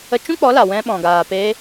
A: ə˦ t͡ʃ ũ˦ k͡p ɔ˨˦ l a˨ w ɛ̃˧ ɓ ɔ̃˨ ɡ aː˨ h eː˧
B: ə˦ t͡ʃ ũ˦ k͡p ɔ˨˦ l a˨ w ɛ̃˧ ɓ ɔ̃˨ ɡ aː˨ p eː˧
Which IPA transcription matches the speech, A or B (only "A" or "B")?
B